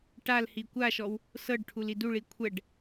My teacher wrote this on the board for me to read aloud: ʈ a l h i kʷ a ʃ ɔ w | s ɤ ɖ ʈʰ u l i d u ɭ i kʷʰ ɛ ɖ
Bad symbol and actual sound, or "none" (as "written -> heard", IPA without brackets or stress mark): none